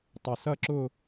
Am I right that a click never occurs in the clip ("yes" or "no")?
no